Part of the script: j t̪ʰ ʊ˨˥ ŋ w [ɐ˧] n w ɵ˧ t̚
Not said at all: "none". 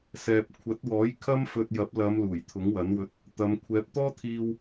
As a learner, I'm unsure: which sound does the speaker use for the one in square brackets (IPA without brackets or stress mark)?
ɐ˨˥